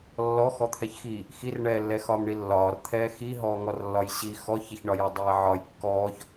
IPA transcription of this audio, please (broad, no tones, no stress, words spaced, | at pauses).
lːɔ xɔt̪ʰɛçxiː | xirɳɛːlːɛ xɒːmɳilːɒːr t̪ʰɛːxi ɦɔːŋɔrlːɒjɕi xɔçɛçɳɒjɒ dˤɛːʕɒj kːɔːç